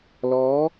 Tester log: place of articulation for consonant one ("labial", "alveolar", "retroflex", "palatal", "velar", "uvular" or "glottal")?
alveolar